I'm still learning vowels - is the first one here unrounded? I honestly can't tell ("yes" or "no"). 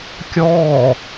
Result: no